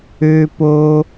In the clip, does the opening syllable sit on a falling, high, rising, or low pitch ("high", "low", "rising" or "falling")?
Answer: low